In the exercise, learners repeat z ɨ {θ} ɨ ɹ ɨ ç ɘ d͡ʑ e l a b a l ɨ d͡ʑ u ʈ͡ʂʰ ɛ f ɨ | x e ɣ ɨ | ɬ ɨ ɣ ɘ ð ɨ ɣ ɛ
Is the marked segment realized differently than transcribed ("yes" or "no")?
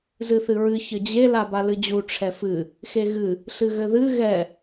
no